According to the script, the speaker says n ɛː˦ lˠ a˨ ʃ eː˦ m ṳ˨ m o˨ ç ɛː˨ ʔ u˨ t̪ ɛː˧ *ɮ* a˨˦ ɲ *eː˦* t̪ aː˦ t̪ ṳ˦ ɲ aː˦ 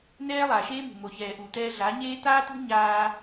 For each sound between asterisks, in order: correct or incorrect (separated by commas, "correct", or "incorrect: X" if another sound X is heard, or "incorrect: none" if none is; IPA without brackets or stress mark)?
correct, correct